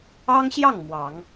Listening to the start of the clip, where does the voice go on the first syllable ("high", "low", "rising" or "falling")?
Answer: high